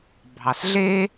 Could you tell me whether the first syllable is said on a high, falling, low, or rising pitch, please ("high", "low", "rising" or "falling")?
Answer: low